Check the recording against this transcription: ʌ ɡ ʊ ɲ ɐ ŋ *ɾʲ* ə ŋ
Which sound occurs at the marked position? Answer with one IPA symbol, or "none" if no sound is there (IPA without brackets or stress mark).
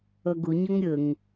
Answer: ɾʲ